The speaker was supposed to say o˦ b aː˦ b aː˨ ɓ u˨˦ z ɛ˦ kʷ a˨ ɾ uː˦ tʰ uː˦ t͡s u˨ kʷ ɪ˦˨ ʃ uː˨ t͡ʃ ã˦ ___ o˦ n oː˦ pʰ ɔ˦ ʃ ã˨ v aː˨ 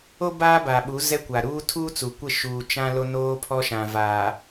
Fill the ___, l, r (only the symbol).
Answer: l